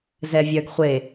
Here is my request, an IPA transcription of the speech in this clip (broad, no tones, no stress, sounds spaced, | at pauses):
z ɛ vʲ œ ɡ χʷ e